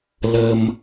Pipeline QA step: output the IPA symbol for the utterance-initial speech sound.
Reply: l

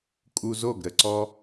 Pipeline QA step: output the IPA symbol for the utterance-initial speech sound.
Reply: kʼ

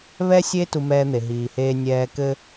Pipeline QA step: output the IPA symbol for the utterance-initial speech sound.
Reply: β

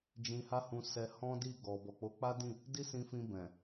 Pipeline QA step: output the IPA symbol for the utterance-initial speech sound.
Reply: d͡ʒ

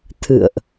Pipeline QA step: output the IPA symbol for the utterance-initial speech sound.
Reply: t̪ʰ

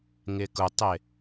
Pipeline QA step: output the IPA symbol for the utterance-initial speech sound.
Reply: ŋ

